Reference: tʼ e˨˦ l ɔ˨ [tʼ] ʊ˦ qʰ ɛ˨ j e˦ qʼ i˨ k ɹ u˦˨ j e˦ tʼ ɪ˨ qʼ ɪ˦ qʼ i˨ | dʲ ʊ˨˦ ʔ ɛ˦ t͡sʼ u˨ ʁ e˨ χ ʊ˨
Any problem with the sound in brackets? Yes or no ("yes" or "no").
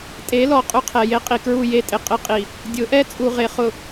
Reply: yes